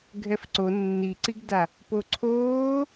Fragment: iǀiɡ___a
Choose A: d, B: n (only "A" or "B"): A